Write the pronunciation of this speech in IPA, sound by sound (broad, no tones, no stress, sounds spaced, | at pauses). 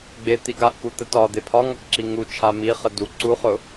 ɡ͡b e t̪ i ɡ a ʔ k u t̪ ə t ɒ d̪ e pʰ ɒ ŋ ɒ k ǁ i ŋ u t͡ʃʰ a m i χ ə d u ǀ u χ ʊ